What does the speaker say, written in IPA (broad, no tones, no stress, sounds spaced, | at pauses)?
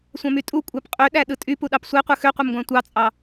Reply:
sʷ æ̃ m y tʼ u kʷʼ æ p qʼ ø ɗ æ ɗ ɯ tʼ y p u ɗ ɑ p sʷ e qʷ ɯ x ø qʷ e m ɡʷ æ̃ tʷ ɑ t͡sʼ ɑ